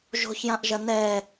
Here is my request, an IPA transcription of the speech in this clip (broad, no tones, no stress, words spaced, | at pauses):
ʒo̤çjãʔʒɐ nɛ